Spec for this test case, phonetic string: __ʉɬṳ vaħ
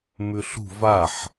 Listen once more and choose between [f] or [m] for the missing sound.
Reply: m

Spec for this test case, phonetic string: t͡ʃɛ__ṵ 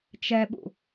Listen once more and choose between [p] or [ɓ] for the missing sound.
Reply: ɓ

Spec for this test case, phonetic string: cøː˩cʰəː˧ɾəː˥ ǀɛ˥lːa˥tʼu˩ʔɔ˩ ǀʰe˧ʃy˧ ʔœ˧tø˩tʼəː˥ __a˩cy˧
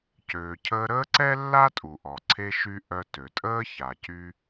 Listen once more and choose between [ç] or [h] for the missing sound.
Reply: ç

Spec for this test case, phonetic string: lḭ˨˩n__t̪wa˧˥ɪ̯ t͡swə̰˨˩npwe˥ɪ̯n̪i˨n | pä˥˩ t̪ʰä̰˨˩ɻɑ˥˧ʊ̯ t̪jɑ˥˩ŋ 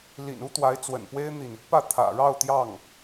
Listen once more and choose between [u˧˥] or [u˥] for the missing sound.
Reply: u˥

